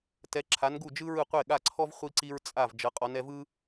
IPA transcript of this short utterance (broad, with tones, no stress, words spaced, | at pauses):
tɛ˨˦ǁʰa˨˦n ɡu˥˩d͡ʒɯ˥ɹɯ˥˩ qʷe˥˩ɠa˥˩ǀʰɔ˥v χʷi˥ǀi˥ɹ t͡sʼa˥˩v d͡ʒɤ˨˦qʼɔ˨˦n ɛ˨˦vɯ˥